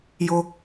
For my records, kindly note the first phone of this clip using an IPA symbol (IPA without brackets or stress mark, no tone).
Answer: j